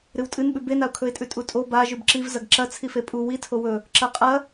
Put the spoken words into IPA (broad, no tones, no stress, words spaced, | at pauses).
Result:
ɾɨwtʼɨnɓʉ benaʊ̯kʰɵɪ̯tʼʉ tʼutʼo baʒʉb ǁiv zɐɡǁɐ t͡sʰifepʼu witʰo wɵ | ǁɐqʼɐ